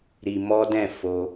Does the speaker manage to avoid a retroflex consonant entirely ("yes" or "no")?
yes